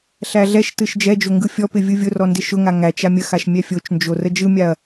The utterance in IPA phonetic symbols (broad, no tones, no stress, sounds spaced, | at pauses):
ɬ æ ɮ ɛ ʃ t ɯ ʃ d͡ʒ ɛ d͡ʒ o ŋ ɡ ɯ fʲ ɔ p ɪ vʲ ɯ vʲ ʊ r ɔ n d ɪ ʃ ʊ ŋ a ŋ æ t͡ʃ a mʲ ə x a ʃ mʲ ɛ fʲ o t͡ʃ n d͡ʒ o r ə d͡ʒ ɯ mʲ a ɐ̯